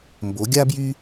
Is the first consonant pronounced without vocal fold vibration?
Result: no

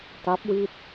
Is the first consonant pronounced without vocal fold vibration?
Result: yes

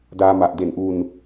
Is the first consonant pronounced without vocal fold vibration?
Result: no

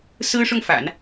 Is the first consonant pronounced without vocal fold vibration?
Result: yes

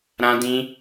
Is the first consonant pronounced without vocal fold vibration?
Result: no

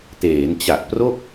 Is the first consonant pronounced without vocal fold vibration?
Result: yes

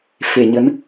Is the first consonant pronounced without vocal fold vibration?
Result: yes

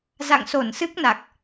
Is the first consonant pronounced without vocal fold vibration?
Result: no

